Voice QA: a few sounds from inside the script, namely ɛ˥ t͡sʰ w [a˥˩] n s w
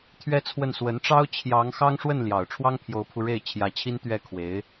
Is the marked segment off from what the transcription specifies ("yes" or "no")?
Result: yes